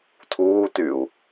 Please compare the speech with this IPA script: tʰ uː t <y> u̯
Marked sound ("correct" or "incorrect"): correct